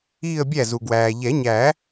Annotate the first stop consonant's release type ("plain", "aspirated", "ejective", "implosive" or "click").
plain